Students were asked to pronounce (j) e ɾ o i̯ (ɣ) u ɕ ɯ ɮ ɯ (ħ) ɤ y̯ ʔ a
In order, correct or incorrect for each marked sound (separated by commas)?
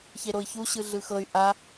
incorrect, incorrect, incorrect